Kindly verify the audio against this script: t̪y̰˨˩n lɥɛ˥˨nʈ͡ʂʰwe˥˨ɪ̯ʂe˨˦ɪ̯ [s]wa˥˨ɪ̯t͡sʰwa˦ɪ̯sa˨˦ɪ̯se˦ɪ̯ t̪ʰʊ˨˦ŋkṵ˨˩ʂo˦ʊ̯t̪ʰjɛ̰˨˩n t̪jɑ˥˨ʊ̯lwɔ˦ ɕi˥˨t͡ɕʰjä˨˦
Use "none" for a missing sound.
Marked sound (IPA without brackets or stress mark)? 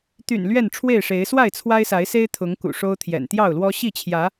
s